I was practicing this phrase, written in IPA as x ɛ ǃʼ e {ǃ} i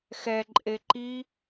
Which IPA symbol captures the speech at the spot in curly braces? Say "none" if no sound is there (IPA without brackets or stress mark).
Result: ǃ